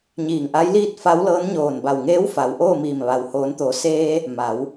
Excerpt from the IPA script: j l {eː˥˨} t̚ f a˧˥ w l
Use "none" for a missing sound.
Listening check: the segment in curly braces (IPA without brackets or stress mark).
iː˥˨